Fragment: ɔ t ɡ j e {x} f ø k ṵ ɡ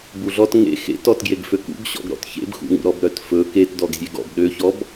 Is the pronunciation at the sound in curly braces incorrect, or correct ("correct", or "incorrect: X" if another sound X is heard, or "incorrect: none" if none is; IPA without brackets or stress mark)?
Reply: incorrect: ɡ